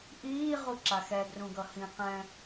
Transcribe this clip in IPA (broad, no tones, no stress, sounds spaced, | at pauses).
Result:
ʔ iː ʁ u ǁ a x ɛ ɡ r ũ ɡ ʌ h ĩ q ɛ̃